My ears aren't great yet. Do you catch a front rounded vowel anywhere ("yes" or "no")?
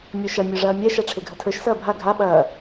no